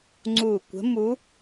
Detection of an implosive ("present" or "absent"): absent